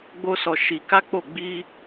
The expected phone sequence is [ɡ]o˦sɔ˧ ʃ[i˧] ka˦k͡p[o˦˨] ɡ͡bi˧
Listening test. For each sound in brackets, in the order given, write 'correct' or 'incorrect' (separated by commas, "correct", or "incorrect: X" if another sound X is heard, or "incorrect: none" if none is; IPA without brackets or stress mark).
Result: incorrect: ɡ͡b, correct, correct